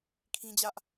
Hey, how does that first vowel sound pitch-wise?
high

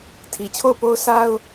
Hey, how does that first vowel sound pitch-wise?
low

